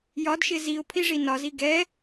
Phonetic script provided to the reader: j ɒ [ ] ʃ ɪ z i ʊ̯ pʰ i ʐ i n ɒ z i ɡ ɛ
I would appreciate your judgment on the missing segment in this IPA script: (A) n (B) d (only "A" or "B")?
B